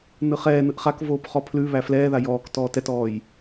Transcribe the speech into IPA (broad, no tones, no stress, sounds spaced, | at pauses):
n ɯ χ ɛː n ɯ ʔ χ a k v oː p χ ɔ pʰ l ʉ β æ f l ɛː ð a j ɔː k t ɔː t ɛ t ɔː j